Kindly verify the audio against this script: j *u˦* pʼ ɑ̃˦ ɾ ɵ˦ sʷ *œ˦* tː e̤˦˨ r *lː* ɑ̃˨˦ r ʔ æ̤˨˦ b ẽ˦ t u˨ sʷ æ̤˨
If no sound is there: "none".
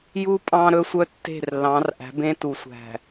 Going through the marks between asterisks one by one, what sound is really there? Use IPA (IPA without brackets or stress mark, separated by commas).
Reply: u˦, œ˦, lː